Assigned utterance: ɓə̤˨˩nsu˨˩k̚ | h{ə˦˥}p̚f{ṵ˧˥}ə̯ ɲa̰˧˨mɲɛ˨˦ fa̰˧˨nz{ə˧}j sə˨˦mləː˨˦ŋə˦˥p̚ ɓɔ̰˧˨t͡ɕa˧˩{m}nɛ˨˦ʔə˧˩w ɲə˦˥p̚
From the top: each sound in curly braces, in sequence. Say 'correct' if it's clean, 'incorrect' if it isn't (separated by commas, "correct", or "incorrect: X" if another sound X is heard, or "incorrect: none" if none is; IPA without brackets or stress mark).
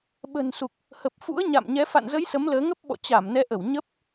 incorrect: ə˨˩, correct, incorrect: ə˨˦, correct